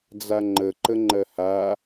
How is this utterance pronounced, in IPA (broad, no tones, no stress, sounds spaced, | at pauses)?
d͡z a ŋ͡ǃ ə ǃ ə ŋ͡ǃ ɜ h a